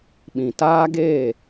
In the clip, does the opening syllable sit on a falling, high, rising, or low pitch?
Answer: low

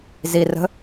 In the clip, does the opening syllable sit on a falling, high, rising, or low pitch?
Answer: low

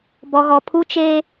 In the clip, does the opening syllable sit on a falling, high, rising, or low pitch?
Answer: low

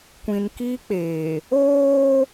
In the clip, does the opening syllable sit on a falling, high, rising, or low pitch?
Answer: low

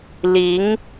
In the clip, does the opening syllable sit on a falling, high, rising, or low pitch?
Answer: rising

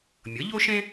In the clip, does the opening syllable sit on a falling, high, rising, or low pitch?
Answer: rising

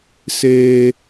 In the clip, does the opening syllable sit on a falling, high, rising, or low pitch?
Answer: high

